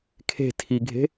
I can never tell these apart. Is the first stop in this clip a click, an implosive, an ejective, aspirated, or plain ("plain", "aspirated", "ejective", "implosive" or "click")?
aspirated